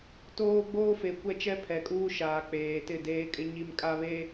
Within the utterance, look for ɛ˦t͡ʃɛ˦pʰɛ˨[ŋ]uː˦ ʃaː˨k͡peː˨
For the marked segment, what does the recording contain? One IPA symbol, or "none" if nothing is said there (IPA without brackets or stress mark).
kʼ